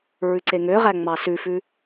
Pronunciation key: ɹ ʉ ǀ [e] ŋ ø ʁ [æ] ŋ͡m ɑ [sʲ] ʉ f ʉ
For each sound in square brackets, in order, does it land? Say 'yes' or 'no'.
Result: yes, yes, no

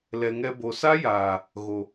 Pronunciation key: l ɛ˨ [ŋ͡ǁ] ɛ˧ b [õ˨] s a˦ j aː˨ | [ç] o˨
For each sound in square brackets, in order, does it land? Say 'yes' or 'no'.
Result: no, no, no

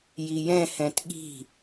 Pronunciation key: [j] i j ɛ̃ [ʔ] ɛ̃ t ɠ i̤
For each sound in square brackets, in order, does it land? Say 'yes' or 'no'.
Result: yes, no

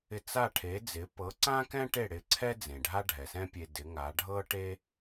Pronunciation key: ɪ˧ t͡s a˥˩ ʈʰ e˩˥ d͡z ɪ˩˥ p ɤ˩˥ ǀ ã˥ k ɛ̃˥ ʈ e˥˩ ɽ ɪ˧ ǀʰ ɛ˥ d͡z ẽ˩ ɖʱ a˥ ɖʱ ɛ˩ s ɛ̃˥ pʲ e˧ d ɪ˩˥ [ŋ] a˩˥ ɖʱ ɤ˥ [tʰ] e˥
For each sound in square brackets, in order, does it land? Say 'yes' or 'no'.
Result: yes, no

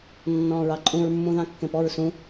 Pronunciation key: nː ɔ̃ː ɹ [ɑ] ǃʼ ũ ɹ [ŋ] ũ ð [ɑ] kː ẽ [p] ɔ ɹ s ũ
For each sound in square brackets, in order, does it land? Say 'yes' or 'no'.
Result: yes, no, no, yes

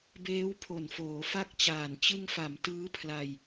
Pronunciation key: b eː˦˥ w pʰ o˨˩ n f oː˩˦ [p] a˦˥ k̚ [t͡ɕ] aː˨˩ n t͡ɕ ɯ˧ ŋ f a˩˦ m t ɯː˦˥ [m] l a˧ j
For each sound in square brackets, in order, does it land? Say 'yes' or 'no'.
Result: no, yes, no

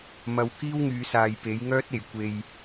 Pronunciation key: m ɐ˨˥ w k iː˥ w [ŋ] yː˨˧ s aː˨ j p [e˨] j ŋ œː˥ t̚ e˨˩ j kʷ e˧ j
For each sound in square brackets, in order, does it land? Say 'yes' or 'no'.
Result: yes, no

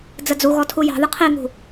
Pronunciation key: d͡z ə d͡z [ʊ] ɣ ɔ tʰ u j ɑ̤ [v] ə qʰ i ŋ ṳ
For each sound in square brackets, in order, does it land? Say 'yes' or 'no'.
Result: no, no

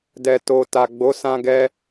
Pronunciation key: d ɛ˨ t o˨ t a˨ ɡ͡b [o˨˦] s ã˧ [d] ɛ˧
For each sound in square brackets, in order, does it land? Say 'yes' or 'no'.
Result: yes, no

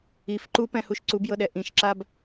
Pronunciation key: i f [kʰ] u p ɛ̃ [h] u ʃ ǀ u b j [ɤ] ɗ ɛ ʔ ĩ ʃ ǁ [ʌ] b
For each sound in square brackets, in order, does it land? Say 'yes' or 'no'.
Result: no, yes, yes, no

